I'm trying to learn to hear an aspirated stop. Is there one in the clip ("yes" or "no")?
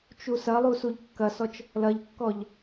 no